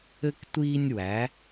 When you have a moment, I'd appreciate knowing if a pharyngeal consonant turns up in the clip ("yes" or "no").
no